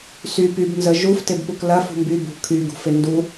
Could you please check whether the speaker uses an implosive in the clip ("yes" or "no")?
no